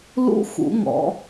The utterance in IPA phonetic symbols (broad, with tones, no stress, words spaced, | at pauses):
lṵ˧ xṵ˩˧ŋɔ̰˩˧